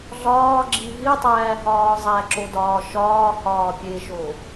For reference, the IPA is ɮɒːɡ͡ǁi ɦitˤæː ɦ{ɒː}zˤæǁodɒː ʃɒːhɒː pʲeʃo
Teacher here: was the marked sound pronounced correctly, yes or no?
yes